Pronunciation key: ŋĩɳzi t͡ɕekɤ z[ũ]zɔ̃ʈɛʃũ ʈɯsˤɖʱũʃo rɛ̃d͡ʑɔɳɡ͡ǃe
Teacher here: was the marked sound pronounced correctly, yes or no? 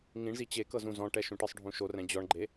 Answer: yes